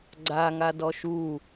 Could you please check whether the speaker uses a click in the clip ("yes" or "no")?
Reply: yes